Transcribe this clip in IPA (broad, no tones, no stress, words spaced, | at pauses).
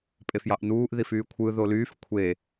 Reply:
pʼefjɑʔnuːʔ ðifyːkʷʰɯ ðolyːf kʷʰe